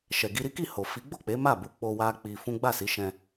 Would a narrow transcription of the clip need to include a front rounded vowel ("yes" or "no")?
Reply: no